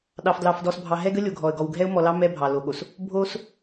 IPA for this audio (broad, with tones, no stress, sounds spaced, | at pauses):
ɗ ɑ˨ f d l ɑ˨ f d ɔ˨ s bʱ ɑ˨ ɦ ɛ˦ ɡ ə˦ lʲ o˨ ɡʱ ɔ˨ ə̯ ɡ ɔ˨ w ɡʱ ɛ˦ ʊ̯ m ɔ˨ l ɑ˦ m ɛ˦ bʱ ɑ˨ l o˨ ɠ o˨ s | bʱ o˦ s